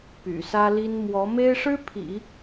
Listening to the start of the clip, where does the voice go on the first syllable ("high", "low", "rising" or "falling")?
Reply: low